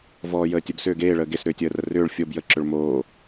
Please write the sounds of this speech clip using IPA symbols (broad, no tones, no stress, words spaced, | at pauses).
vɔːjəːtʲəb sʏːɡeː ɭəːɡes ɾʏːtʲəːrərʏːɭ fʲob jə ǁʏɭmoː